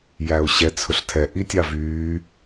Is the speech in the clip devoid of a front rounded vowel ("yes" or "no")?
no